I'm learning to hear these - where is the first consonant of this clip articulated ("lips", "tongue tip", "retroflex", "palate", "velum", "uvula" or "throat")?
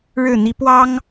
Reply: retroflex